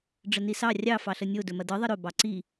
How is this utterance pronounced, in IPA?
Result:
ɖ͡ʐ ə n i s ɑ rʲ ɑ f ɑ ɬ ə nʲ o d ɵ m ɐ d ɯ ðˤ ə ɾ ɵ b ɑ ǀ i

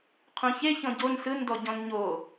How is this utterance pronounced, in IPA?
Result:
qʰ ũ ç e ç ɔ̃ ɟ o n s ɯ n d ɔ ɟ ɔ̃ n ɲ o

